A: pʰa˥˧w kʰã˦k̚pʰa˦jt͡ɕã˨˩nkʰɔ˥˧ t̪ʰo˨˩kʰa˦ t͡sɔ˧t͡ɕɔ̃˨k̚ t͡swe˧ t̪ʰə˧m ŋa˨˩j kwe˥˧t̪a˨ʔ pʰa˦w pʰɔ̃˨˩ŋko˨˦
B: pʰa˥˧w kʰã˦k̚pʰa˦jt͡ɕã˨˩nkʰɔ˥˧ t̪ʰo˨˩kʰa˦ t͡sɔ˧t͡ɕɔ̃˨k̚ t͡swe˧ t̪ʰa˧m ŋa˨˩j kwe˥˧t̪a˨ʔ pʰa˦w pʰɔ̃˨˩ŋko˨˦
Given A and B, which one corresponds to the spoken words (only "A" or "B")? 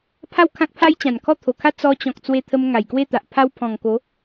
A